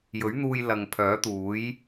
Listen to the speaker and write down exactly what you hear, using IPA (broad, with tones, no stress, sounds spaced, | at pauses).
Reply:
j ɵ˨˥ ɥ n̪ uː˧ j l ɐ˨ ŋ pʰ œː˨˥ t̪ uː˨˥ j